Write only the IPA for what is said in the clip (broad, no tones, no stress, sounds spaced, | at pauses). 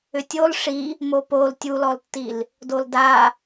ʏ tʲ o l ʂ i | m o p o l tʲ u l ɔ l tː i l | d o l d a